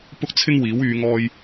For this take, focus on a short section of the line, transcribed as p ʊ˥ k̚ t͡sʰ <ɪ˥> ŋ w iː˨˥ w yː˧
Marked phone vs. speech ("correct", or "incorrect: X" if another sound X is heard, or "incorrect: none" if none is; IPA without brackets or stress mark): correct